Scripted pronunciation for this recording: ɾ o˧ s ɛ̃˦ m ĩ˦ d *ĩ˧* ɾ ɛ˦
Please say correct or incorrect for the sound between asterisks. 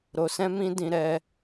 correct